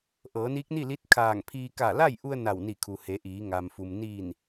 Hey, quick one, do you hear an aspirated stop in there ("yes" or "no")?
yes